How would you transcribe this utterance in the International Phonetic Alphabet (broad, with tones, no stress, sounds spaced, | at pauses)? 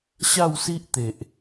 ɕ a˥˧ w s i˦ ʔ t̪ e˨ ʔ